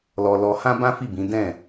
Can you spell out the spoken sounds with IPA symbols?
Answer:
l ɔ˧ l ɔ˧ h ã˦ b ã˦ f i˦˨ b ĩ˨˦ d ɛ̃˦˨

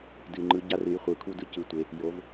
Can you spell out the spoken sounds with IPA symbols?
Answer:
d ɨ˩ ŋ͡ǃ ɯ˩˧ ɟ a˧ r ɨ˩˧ j χʷ ɯ˩ kʰ u˧ d ɯ˧˥ c ɯ˩˧ tʷ e˩˧ | j o˩˧ v

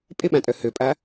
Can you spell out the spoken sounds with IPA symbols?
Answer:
pʼ ɪ ɓ ã tʼ œ h ø pʼ a

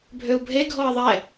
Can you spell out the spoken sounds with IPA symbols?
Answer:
bʱ ø u̯ bʱ e ɡʱ ɔ i̯ ðˤ ɛ

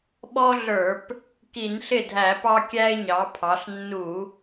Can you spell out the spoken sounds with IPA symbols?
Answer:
ɓ ɔ˦ ɮ ə˞˧˩˧ p | k i˧˩˧ n ɬ ɪ˥˩ dʱ æ˧˩˧ p ɑ˦ kʲ æ˦ ɪ̯ ɲ ɑ˩˧ pʰ ɑ˩˧ ɬ nː u˧˩˧

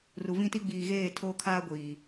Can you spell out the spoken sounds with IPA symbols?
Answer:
r u˨ v ĩ˦ t i˦ ɡ͡b iː˨ ɣ eː˦˨ tʰ oː˦ kʰ aː˦ ɡʷ iː˨

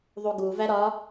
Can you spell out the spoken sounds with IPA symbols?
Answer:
ðˤ u ɡ u v æ ɾ ɒ

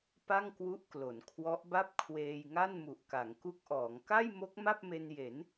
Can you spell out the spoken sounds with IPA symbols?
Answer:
p a˥˩ ŋ k w u˦˥ ʔ k l o˩˦ n kʰ w ɔ˦˥ ʔ b a˥˩ p̚ kʰ w eː˧ j ŋ a˥˩ n m u˨˩ ʔ k a˩˦ ŋ k u˦˥ k̚ ʔ ɔː˩˦ ŋ k a˥˩ j m o˦˥ k̚ m a˥˩ p̚ m e˧ n j e˩˦ n

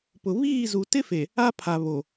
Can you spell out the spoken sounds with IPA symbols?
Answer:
p ʊ˨ β iː˦˨ z u˨ t ɪ˦ f e˨ | a˦ pʰ a˨ β o˨

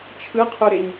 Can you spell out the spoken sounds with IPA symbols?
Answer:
t͡ʃʰ ɯ qʰ u ɾ e ɲ

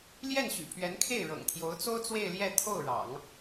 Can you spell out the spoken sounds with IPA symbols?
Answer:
l j ɛ˥˩ n ɕ y̰˨˩ pʰ ɥ ɛ˧˥ n kʰ e˥˩ ɪ̯ ɻ ɤ̰˨˩ ŋ t̪ʰ j o˧˥ ʊ̯ t͡s o˥ ʊ̯ t͡s w e˥˧ ɪ̯ l j ɛ˥˧ t̪ʰ o˥˩ ʊ̯ ɻ ɑ̰˨˩˦ ŋ

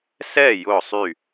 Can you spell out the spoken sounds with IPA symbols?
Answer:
s ɛː˥˨ j ʊː˧˩ sˤ y˧˩

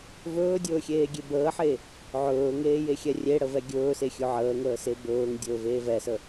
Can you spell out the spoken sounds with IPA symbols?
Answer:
v ɵː dʲ ɵː xʲ eː ɡʲ e b əː ħ e | ʕ ɵː ŋ eː j e xʲ ɛ rʲ e ɽ ə v ɛ ɡʲ ɵː s e xʲ ɵ ʕ əː ŋ əː s e b ɵː ŋ dʲ ɵː v eː v ɛ s ə

